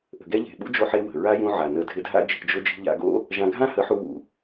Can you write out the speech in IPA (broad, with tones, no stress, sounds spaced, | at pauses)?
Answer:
ʔ ə̤˨ ɡ ɛ˦ ʎ e̤˨ ɓ ṵ˦ d͡ʒ o˧ ħ e˧ w ə̤˨ ɹ a˦ j ũ˧ ʕ a˨ n ə˧ dʱ ɪ˧ dʱ a̰˦ d͡ʒ i̤˧ d͡ʒ ʊ˦ d͡ʒ i̤˦ ʎ a̰˧ ɡ o̰˦ | ʒ ã˧ ɡʱ ã˦ h ə˨˦ ħ u˧ w ṵ˨